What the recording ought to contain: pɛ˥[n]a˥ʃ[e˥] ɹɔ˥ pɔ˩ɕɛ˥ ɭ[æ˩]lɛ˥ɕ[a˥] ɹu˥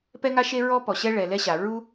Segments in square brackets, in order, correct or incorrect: incorrect: ŋ, correct, incorrect: ɛ˩, incorrect: a˩

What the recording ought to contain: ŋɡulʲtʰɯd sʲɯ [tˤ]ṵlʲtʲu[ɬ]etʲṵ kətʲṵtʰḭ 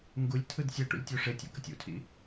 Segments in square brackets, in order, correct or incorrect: incorrect: ʈ, incorrect: ʂ

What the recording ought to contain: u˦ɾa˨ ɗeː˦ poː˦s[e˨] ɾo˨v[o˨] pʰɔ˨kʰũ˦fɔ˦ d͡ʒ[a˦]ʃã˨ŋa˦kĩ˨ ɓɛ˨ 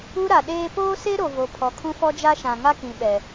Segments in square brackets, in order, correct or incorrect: incorrect: e˦, correct, correct

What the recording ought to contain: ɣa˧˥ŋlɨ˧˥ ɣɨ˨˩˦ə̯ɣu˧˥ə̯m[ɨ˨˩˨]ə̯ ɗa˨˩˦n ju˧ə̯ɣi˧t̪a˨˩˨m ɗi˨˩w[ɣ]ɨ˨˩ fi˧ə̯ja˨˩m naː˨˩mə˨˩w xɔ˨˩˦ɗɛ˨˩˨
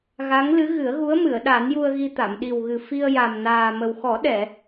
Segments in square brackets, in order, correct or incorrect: correct, correct

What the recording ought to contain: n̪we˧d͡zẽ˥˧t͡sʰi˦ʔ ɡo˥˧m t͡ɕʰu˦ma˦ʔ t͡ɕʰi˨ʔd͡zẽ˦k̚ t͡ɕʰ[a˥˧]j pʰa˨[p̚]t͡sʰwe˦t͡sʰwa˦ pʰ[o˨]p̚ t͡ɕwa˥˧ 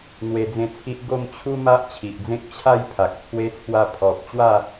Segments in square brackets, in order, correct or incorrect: correct, incorrect: k̚, incorrect: ɔ˨

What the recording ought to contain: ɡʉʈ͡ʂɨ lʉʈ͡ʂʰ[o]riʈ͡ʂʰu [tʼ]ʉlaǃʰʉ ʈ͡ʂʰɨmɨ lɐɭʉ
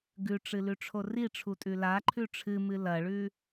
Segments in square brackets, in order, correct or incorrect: correct, correct

